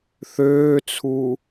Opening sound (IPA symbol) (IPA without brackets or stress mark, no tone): θ